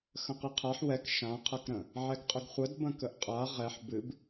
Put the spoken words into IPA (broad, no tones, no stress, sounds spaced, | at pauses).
x ə̃ q ɨ qʰ a ħ w ɛ k ʃ ã qʰ ɐ k ɾ ə̃ | ʕ ɛ ɡ qʼ ə ɡ χʷ ə d b ə̃ k ə ʔ qʼ a ʁ ɛ ħ b ɨ b